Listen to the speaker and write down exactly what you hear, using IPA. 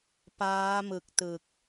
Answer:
p aː˦˥ m ɯ˨˩ k̚ t ɯ˨˩ k̚

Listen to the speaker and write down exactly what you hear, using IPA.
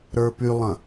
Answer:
ɾ ə˞ p y lˠ ɐ̃

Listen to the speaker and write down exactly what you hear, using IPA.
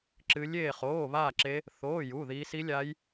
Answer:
ǁ ɨ˦˥ lʲ eː˥˧ χ oː˧˥˧ β aː˥˧ ǁ e˦˥ | θ oː˧˥˧ j u˧˥˧ ð iː˦˥ s i˦˥ lʲ a˦˥ j

